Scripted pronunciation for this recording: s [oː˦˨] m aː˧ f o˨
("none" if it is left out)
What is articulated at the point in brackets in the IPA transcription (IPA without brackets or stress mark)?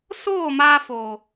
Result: oː˦˨